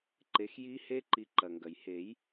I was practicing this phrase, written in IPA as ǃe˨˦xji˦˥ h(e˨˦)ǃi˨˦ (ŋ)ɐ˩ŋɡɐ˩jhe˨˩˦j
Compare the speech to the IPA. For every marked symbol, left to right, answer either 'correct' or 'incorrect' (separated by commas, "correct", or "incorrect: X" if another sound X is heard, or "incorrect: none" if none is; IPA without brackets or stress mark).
incorrect: e˦˥, incorrect: ǃ